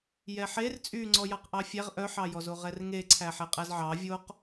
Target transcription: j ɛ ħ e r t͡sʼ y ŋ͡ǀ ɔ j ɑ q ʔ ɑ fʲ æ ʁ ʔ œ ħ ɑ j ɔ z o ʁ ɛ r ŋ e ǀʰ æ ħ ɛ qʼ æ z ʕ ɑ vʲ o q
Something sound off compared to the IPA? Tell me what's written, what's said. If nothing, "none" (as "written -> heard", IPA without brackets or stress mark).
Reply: none